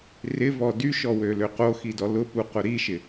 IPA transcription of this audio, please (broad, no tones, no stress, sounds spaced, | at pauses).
r ɪ v ɔ d y ʃ ɔ w ø l ø q o x i d ɔ l ʊ p u q ʊ ɾ i ʃ ɪ